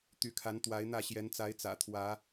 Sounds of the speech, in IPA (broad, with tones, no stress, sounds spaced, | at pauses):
t̪ y˨˦ kʰ a˨˦ n t̪ w a˨˦ ɪ̯ n̪ ä˥˨ ɕ j ɛ˨˦ n t͡s a˨˦ ɪ̯ t͡s ä̰˨˩ t̪ʰ w ä˨˦